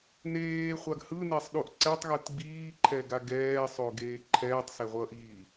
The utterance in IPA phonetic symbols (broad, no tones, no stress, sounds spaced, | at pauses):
n eː χʷ a ɡ h ɯ n e sˤ ɗ u ʔ ǀ ɛ tˤ ɣ ɯ t ɡ͡b iː ǃʰ ɛ ɡ a ɡ ɛː sˤ o ɡ eː ǃʰ ɛː tˤ s e ʁʷ ʌː ʔ iː